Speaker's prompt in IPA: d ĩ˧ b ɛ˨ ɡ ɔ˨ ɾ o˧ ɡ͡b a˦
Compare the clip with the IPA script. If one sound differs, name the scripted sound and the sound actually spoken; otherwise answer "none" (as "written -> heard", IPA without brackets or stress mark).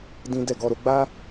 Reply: b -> d